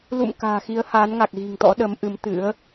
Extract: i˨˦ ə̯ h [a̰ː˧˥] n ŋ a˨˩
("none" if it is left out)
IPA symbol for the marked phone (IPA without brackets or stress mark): aː˨˦